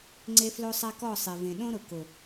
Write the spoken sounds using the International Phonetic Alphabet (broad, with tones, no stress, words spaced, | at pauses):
ŋ͡ǀe˦flo˦sˤa˦ kɔ˦˨ sˤe˨vẽ˨ ɗõ˦ ɾʊ˨ kʊ˨